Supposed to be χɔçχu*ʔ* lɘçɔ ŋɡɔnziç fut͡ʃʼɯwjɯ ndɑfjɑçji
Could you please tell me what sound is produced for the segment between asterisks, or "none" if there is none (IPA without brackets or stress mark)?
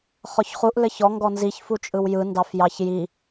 ʔ